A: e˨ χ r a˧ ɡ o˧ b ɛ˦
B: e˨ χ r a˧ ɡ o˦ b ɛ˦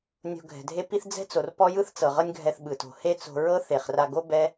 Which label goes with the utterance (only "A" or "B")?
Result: B